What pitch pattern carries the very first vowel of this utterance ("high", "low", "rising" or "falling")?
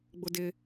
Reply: high